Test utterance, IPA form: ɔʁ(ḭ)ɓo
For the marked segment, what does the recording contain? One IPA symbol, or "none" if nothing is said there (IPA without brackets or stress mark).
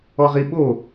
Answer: i